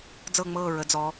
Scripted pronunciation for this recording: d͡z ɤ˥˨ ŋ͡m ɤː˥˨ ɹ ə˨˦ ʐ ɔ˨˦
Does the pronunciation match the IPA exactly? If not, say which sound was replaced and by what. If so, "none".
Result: ʐ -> d͡z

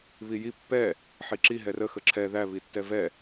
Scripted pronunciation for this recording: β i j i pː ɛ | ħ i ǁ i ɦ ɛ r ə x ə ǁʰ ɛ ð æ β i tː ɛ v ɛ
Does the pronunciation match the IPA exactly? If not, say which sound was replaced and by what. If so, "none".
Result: none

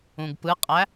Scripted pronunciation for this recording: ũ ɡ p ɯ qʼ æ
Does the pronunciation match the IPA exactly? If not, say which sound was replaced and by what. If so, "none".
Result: none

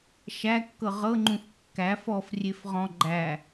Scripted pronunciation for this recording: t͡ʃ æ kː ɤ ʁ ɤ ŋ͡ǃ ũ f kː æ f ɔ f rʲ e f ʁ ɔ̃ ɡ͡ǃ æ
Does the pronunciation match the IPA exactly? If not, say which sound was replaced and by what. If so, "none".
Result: t͡ʃ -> ʃ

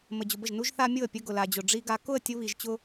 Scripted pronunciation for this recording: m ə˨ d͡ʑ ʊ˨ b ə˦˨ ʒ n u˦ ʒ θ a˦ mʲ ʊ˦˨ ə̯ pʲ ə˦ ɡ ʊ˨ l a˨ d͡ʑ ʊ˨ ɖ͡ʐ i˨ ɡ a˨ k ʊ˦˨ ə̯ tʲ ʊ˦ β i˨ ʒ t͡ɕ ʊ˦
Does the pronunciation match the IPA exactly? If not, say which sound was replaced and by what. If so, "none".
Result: none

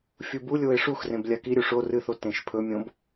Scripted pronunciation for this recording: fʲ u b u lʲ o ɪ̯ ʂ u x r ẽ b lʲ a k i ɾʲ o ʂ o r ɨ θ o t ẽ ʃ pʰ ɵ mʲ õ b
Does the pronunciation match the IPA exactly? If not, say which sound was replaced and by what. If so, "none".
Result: none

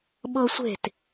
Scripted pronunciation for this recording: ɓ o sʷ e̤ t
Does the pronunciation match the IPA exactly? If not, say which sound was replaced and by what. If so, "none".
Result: o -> ɤ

